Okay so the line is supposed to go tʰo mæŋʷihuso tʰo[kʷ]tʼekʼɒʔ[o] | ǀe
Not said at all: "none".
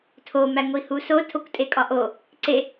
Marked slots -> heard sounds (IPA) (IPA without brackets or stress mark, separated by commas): kʷ, o